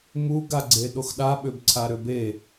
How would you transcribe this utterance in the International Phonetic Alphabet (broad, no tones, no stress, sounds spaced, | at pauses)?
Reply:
m u ɡ a ɡ͡ǀ e ɗ o x ɗ a ɓ ʏ b ǀʰ a ɾ ʏ b e